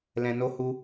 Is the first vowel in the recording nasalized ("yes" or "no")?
yes